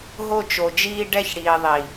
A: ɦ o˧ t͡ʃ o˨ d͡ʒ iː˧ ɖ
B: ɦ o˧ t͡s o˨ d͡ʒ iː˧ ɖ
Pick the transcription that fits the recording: A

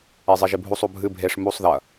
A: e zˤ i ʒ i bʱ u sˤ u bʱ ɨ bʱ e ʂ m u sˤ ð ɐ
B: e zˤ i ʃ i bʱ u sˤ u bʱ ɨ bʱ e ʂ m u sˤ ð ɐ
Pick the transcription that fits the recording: A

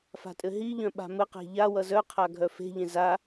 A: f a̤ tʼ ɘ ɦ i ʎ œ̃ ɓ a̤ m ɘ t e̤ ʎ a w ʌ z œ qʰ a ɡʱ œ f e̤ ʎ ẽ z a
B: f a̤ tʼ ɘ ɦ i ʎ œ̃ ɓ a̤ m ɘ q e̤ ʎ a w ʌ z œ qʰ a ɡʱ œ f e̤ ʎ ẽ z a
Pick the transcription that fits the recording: B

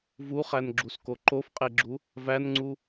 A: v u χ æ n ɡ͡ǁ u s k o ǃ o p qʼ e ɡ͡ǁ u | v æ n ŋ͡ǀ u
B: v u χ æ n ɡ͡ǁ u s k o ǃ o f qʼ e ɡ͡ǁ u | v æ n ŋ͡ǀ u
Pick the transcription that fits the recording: B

